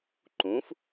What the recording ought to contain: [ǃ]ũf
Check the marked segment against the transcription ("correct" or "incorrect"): correct